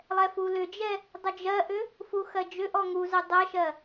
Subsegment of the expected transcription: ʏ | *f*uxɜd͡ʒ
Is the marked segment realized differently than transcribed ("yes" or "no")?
no